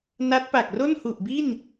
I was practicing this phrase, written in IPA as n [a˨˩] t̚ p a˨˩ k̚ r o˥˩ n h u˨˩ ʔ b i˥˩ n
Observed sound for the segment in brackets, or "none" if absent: a˦˥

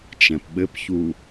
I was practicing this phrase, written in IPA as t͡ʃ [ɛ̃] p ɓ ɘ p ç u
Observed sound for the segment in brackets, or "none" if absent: ɛ̃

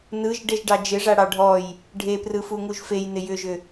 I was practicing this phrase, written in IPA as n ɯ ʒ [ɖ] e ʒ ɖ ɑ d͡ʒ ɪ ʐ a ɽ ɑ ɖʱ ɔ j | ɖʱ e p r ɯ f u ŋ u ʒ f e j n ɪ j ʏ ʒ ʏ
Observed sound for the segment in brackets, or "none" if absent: ɖ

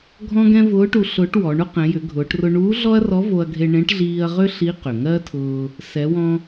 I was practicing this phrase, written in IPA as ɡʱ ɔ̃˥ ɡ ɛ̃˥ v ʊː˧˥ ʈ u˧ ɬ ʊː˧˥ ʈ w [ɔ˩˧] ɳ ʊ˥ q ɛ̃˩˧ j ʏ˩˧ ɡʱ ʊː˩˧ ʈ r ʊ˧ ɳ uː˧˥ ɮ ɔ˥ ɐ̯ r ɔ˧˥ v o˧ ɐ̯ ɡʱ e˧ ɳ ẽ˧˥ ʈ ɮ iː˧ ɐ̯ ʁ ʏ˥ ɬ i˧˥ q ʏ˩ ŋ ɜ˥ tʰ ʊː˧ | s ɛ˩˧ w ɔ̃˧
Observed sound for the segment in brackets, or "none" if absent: ɔ˩˧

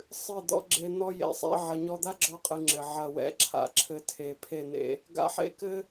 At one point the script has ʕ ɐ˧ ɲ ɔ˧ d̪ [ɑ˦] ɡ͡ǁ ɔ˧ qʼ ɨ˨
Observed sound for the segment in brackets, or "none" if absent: a˦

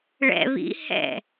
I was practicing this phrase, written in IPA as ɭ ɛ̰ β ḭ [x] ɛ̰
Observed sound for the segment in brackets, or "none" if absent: h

